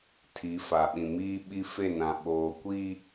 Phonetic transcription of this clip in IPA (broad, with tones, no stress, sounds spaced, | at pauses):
tʰ i˨˦ f a˨ ɓ ĩ˨ m iː˦ ɓ i˦ f e˦˨ n ã˨ ɓ oː˨ kʷ i˦